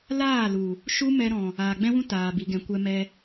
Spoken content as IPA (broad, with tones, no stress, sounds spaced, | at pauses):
l aː˦˨ l u˨ | ʃ u˦ m ɛ˧ ɾ ɔ̃˨ | aː˨ ɡ͡b ɛ̃˦ w ũ˦ t aː˨ b i˨ ɡ ɛ̃˨ kʷ ɛ˧ m ɛ˧